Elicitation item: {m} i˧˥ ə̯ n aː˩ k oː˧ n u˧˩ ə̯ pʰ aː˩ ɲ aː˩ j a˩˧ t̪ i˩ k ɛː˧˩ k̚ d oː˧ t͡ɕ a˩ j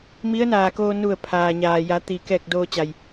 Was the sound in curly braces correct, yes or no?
yes